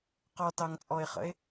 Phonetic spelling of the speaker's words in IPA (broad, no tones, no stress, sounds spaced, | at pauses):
q ɔ t ɑ ŋ t͡sʼ ɔ e̯ χ ə̰ e̯